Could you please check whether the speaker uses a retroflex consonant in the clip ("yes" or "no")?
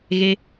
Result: no